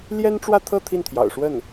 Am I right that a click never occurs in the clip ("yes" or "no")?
yes